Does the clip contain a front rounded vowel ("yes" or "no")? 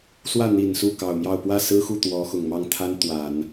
no